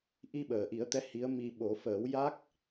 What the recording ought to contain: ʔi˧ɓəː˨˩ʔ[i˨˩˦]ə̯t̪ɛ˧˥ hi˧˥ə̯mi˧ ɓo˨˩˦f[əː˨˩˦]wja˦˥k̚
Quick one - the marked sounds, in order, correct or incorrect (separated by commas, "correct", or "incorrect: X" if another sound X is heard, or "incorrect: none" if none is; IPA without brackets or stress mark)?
correct, correct